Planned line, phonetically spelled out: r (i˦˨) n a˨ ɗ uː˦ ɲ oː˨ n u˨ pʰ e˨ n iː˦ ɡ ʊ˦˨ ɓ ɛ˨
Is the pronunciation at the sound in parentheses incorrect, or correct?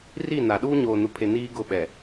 correct